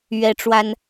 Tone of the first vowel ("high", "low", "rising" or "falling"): high